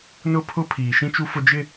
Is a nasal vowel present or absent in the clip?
present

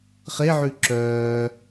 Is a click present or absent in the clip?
present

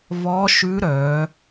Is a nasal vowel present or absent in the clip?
absent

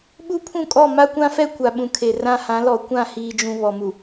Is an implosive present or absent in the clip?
present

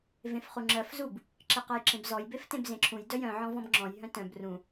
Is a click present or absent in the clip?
present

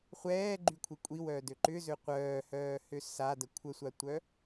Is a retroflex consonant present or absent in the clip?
absent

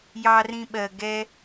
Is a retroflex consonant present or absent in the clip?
absent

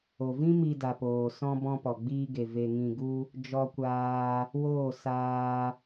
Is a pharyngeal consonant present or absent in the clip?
absent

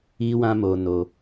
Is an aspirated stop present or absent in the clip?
absent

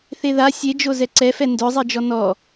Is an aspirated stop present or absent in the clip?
absent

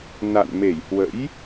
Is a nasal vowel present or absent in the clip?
absent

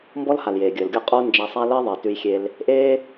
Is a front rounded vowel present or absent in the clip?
absent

